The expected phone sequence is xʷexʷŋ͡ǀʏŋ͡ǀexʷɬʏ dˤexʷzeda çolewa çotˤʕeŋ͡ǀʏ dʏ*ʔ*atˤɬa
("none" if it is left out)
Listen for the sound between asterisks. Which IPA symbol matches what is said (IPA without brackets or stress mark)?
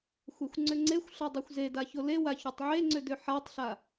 ħ